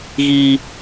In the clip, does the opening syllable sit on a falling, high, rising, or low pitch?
low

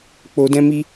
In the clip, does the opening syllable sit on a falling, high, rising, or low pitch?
low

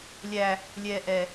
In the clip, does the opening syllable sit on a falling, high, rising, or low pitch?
high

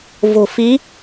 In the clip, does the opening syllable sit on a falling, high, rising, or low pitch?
low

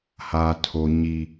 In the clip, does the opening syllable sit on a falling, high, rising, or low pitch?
high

